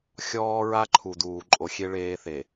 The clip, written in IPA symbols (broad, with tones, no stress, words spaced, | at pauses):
xʲɔː˦ ɹa˦ǃʰu˨ duː˨ ǃʼo˨xʲe˦ ɭeː˦θe˨